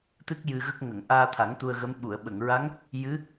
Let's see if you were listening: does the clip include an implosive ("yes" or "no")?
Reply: yes